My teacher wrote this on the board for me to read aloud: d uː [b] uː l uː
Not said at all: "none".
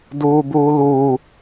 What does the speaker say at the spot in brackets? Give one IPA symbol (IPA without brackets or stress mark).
b